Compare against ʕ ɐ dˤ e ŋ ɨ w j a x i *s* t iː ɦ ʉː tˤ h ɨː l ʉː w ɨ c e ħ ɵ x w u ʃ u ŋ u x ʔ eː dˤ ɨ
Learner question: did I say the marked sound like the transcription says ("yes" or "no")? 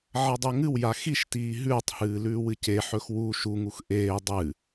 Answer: no